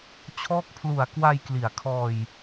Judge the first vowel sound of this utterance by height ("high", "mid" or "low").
mid